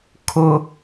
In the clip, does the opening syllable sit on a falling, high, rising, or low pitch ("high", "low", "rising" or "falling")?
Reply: high